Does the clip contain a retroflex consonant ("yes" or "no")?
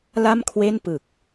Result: no